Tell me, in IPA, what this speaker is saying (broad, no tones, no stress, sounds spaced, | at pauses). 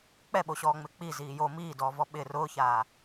k͡p ɛ ɓ o ɕ ɔː ŋ͡m ɪ k͡p i z iː j o m iː d ɔː v ɔ ɓ ɪ r ʊː ç aː